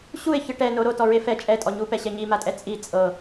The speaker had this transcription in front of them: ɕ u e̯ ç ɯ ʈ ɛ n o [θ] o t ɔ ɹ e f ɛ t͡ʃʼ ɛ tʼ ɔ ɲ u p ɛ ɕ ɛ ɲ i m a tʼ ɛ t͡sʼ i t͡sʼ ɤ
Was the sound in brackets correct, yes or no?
no